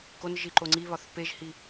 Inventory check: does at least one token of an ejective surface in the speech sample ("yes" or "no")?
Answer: no